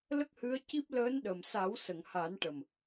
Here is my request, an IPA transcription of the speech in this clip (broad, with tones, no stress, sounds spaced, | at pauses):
l ə˦˥ k̚ h ɨ˧˥ ə̯ c i˦˥ p̚ l əː˧˥ n ɗ ə˨˩ m s a˨˩˦ w s ə˨˩˨ ŋ h a˨˩˦ n ʈ ə˨˩ m